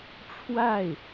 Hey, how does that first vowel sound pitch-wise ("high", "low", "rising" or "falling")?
falling